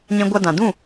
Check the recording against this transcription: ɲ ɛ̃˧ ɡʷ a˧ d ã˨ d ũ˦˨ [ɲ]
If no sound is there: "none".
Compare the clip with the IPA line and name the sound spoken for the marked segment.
none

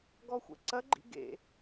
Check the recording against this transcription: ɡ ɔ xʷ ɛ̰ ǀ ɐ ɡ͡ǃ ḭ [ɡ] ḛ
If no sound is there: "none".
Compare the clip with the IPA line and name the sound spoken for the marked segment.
ɡ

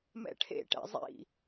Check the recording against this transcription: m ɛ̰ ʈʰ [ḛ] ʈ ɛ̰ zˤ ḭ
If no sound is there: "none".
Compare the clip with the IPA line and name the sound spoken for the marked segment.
ḛ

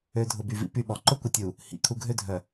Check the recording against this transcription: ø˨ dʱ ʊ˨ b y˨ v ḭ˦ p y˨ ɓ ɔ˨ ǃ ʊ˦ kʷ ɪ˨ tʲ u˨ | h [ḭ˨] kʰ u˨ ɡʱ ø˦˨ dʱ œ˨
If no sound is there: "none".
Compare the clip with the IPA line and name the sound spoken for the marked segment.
ḭ˨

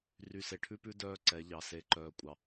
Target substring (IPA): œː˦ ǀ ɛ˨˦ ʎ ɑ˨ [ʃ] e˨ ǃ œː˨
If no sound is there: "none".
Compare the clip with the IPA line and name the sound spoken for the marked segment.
s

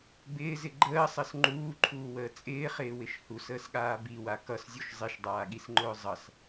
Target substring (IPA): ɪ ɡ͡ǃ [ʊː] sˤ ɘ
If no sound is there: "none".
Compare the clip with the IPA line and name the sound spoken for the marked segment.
əː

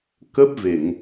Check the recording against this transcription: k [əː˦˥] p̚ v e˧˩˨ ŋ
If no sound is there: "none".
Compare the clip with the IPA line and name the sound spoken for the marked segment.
ə˦˥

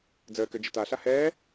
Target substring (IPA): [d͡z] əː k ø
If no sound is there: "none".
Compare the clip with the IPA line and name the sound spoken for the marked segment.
d͡z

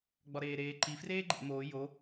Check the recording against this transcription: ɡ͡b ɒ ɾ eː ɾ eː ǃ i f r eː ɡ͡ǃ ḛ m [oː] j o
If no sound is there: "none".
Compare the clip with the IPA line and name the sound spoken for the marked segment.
oː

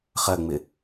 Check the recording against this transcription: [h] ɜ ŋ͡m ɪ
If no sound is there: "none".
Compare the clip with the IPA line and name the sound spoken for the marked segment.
χ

